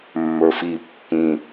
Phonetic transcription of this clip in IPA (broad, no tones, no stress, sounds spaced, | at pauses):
mː ə˞ f i pː ĩ